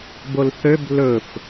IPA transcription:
b o l θ ø b l ɵ f

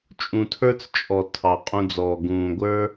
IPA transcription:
t͡ʃʼ ũ˨ tʰ ə˞˦ t͡s t͡ʃʼ ɔ˨ tʰ ɑ˨ qʼ ũ˧ d͡z ɔː˨ ɡ ũː˨ ɡʷ ə˞˦

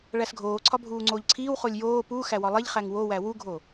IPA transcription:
ɭ æ s ɡʱ oː ǀʰ ɒ bʱ uː ŋ͡ǀ oː ʎ ǀʰ iː w χ o lʲ j oː p u x æ w ɒ lˠ e ʎ χ æ ŋ w o w æ w u ɡʱ o

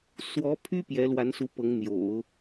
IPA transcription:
s w ɔ˧˥ pʰ y˥ p j ɛ˧˥ l w a˧˥ n s u˧˥ p ɤ˧˥ ŋ n̪ j o̰˨˩˦ ʊ̯

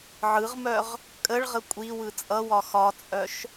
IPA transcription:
ʕ ɯ ʁ m œ ʁ | kʼ ə ɭ ʁ ə kʷʼ i w ɯ t͡sʼ ʌ w ɒ x ɒ t͡sʼ œ ʃ

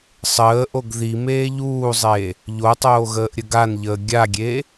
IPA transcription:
sˤ əː ʔ o ɡ ð i m eː ʎ uː zˤ e | ʎ o tˤ oː ɣ əː ʔ ɾʲ ə ɡ a n ʎ əː ɡʲ a ɡʲ e

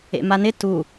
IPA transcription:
ḛ m a n ɪ t u

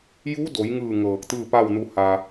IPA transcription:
j u˧˥ d o˩˧ j ŋ ɯː˧˩ ŋ ɤː˧˩ k̚ t̪ ɯː˥˨ p a˥˨ w n u˧ h a˧

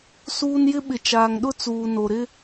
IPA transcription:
s uː˦ n j ɪ˦ ɓ ɪ˨ t͡ʃ aː˨ ŋ ɗ ʊ˦ t͡s uː˨ n o˨ ɾ ɪ˦

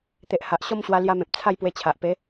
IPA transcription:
t̪ e˨ ʔ h a˨ ʔ ɕ ɔ˥˧ m ɕ w a˧ l j a˧ m ẽ˨ p̚ t͡sʰ a˥˧ j p w e˧ t͡ɕʰ a˨ ʔ p e˨˦

